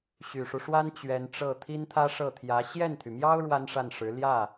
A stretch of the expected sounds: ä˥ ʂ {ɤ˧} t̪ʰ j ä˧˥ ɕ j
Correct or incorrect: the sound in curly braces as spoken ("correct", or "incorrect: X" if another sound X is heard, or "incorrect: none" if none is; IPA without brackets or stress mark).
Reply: incorrect: ɤ˥˩